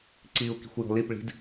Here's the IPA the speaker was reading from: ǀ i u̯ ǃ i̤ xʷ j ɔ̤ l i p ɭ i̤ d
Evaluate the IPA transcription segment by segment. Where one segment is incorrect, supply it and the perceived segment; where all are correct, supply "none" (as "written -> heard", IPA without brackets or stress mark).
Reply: ǃ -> k